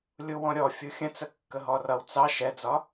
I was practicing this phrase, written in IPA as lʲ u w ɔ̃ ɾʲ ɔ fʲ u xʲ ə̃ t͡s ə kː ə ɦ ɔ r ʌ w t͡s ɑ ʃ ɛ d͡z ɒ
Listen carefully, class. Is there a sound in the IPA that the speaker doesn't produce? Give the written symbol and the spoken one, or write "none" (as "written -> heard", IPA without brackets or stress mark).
none